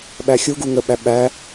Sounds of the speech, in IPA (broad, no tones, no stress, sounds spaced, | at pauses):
ɓ æ xʲ u ɡ u ŋ ə ɓ æ ɓ æ